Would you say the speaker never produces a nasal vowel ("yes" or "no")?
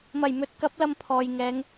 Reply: yes